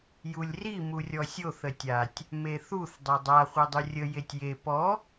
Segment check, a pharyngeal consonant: absent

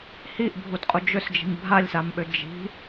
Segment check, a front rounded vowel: present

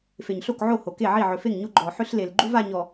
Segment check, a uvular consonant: absent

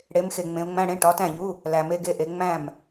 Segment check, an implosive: absent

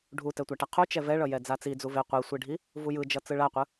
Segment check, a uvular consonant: present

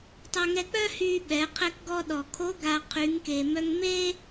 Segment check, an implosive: present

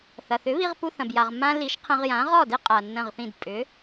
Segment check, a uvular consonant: present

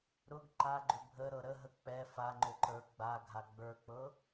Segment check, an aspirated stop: absent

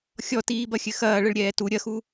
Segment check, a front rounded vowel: absent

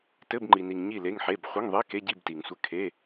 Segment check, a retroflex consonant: absent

